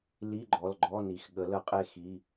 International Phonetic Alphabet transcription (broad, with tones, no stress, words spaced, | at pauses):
li˧˥˧ ɡ͡ǃɔ˩˧˩lɡ͡ǃɔ˧˥˧ ni˩x ɠə˨˩˦lə˨˩˦qʼe˦˨ xi˩˧˩